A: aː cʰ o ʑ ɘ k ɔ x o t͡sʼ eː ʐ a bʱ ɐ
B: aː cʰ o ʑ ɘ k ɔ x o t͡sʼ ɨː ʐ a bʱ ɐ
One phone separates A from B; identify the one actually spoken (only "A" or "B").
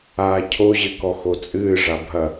B